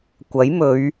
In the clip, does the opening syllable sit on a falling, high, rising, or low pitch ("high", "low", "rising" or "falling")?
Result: rising